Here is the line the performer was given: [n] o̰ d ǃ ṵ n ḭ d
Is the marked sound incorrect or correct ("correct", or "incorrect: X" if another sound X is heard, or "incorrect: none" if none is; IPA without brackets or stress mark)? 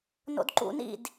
correct